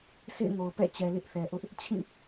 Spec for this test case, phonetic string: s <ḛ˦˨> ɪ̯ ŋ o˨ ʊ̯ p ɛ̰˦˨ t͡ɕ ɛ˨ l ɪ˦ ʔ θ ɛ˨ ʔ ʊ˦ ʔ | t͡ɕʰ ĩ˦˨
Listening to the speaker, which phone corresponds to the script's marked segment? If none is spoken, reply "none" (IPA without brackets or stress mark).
ḛ˦˨